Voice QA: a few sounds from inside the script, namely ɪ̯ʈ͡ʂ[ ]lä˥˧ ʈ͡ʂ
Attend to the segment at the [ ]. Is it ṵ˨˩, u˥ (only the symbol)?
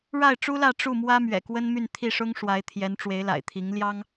u˥